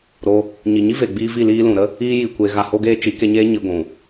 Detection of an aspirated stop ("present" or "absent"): absent